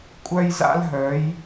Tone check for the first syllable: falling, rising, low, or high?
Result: high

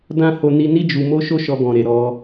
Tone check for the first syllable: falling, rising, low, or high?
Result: high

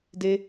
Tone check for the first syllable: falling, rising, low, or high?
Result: high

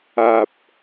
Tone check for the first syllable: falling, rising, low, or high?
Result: low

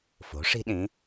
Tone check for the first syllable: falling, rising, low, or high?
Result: rising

